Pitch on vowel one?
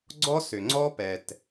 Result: high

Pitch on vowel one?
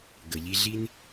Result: low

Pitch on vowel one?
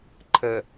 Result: low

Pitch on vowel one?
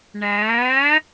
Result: rising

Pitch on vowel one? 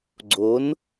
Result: rising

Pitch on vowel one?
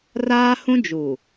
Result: high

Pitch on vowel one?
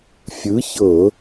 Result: rising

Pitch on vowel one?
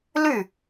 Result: falling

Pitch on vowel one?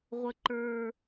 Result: low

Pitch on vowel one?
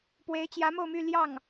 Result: rising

